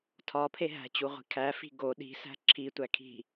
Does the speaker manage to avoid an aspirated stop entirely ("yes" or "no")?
no